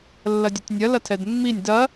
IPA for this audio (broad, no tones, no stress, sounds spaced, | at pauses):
lː ɐ dʲ ʉ tʲ nʲ ɐ l ɐ tʰ ɛ d mː i nʲ d ɐ